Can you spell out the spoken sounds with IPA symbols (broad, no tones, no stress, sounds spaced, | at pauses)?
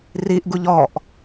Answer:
r i ʔ ɡ u ʎ ɔ ʔ